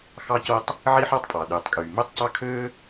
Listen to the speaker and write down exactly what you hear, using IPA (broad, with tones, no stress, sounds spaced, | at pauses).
x ɑ˥ c o˥ tˤ | ʕ i˥ ħ ɑ˥ tˤ pʼ ɑ˩ ɗ yː˩ tˤ kʼ yː˩ m ø˥ tˤ c ɑ˥ kʰ øː˥